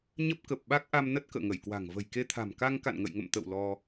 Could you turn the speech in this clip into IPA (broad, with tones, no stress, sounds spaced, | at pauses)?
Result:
ɲ ə˦˥ p̚ k ə˨˩ p̚ ɓ a˦˥ k̚ ʔ a˧ m n ə˦˥ t̚ k ə̰ː˧˨ ŋ ə˧˩ j k w a̤˨˩ ŋ v ə̤˨˩ j k e˧ t̪ʰ a̤˨˩ m k a˧ ŋ k a̰˧˨ n ŋ ə̰˧˨ j ŋ ə̰˧˨ m t̪ ə̰˧˨ w l ɔ˧